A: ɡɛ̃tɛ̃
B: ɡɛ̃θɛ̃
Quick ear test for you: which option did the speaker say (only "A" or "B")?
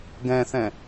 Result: B